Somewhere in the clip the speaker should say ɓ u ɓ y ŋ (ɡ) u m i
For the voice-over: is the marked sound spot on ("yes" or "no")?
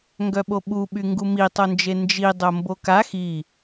yes